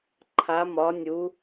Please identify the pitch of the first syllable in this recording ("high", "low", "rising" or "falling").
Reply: rising